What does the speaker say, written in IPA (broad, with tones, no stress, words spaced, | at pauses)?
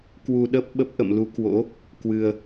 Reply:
kwu˧ɗə˦˥p̚ ɓə˦˥p̚ ʔə̰˧˨mlu˨˦ kwo̰˧˥ | kwɨ˧ə̯